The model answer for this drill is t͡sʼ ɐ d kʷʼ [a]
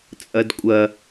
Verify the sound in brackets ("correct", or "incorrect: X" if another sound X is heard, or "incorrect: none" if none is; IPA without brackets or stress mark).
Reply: incorrect: ɐ